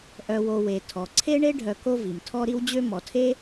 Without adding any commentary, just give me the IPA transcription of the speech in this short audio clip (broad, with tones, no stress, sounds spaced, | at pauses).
ʔ œ˨ w o˨ w e˩ tʰ ɔ˩ ǀʰ e˥ ɳ e˥ ɖʱ œ˨ k o˦ v i˩ m tʰ ɔ˦ ɾ i˦ w d͡ʑ ø˦ m ɔ˩ tʰ e˥